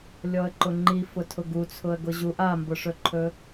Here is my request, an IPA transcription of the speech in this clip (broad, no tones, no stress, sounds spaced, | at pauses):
lʲ ɔ ə̯ ǃ ʊ ŋ͡ǃ i f ʊ tʰ ʊ ɡ u t͡sʰ ʊ ə̯ ɡ ʊ ʑ u ʔ a m b ʊ ʂ ɵ ǃʰ ɵ